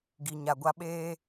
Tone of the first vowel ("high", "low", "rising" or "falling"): low